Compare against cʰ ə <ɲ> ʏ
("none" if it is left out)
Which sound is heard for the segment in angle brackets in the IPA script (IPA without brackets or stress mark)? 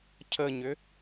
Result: ɲ